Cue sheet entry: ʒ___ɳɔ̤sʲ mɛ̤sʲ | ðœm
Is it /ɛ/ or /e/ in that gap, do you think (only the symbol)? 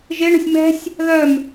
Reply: e